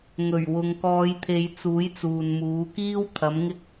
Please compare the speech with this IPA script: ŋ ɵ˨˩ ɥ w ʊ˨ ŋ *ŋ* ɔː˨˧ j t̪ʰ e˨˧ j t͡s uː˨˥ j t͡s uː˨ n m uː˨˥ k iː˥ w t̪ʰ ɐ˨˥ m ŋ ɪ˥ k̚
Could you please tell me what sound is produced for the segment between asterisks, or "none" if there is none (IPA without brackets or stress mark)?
k